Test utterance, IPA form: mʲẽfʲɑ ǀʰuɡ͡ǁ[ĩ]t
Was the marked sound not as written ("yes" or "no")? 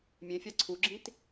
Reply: no